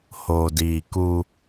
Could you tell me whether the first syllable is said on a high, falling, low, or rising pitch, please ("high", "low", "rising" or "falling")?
low